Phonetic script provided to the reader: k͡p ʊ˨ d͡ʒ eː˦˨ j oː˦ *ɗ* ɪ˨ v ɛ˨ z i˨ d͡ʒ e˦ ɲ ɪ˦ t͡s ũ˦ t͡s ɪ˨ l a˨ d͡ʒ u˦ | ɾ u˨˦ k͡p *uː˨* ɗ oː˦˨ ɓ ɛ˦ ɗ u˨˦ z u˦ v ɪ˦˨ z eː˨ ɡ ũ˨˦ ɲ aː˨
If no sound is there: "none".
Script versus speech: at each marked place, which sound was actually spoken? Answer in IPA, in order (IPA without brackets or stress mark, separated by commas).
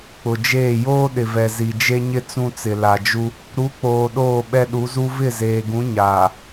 ɗ, oː˨